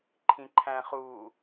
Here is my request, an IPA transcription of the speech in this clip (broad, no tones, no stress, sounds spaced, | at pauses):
ǃʰ ĩ ǃʰ æ̃ χ u